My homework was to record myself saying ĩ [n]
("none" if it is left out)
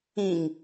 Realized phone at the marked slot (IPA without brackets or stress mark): ŋ